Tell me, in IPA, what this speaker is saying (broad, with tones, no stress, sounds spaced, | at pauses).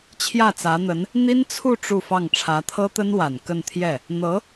t͡ɕʰ j ä˥˩ t͡s ä˧˥ n̪ ə˧˥ n | n̪ i˥ n t͡sʰ u˥˧ ʈ͡ʂ u˥˧ f ɑ˥˩ ŋ ʈ͡ʂʰ ä˧˥ t̪ʰ ɤ˥ t̪ ə˥ n w a˨˩ n k ə˥˧ n t̪ʰ j ɛ˥˩ | n̪ ɤ˧˥